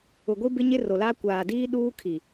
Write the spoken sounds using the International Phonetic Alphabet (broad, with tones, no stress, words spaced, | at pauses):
ʊ˨ɡʷi˦bɪ˦ɲɪ˦ ro˨la˦ kʷaː˨diː˦ ɗuː˦kʰi˨